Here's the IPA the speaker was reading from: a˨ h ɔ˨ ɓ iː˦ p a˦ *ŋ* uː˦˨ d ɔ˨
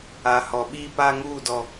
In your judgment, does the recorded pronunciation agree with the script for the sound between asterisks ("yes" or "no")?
yes